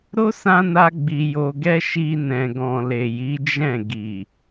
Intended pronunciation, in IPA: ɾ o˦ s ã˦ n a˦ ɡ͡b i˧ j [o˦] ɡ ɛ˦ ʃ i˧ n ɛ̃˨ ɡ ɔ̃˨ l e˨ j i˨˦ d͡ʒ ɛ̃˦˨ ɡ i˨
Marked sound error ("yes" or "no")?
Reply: yes